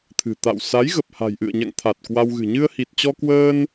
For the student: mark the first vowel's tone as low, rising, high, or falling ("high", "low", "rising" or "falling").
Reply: low